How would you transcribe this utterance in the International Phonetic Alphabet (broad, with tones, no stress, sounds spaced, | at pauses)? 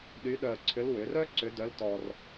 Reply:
ɗ y˧˥ ɗ œ˧ ə̯ ǀʰ ʏ˧˥ l w ʏ˩˧ r œ˥ ǀ ʏ˧˥ d œ˧˥ l t ɔ˧ r